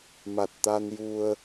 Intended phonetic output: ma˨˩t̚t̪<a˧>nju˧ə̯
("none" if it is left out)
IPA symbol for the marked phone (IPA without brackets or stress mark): a˧